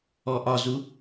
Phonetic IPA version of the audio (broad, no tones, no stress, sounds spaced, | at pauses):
ɔ ʔ ɒ z u